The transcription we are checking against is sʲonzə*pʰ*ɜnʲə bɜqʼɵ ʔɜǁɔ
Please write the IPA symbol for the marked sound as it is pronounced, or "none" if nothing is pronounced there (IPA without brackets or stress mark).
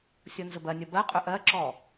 b